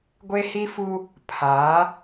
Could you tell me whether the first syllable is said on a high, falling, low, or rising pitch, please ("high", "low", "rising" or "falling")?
high